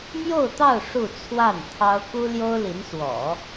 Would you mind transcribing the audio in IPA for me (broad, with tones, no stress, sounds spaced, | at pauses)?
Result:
m j o˥˧ ʊ̯ t̪ ɑ˥˧ ʊ̯ ʂ u˥˧ t͡sʰ w a˥˩ n t̪ʰ ɑ˥ ʊ̯ k u˥ l j o˥ ʊ̯ l i˧˥ n s w ɔ̰˨˩˦